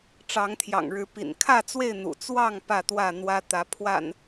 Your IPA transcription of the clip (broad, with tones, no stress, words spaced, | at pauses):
ʈ͡ʂɑ˨˦ŋt̪ʰjɑ̰˨˩ŋɻɻ̩˨˦ pḭ˨˩nkʰä˥˨t͡swe˥˨ɪ̯ n̪ṵ˨˩t͡swɑ˥˨ŋ pä˥˨t̪wä˥˨n̪wä˦t̪ä˨˦ pʰwa̰˨˩n